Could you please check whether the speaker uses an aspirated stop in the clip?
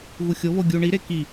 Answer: no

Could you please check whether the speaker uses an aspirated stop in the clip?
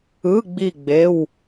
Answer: no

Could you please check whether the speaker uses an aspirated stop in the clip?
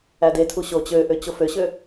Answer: yes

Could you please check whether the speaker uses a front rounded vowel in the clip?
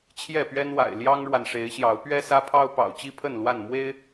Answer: no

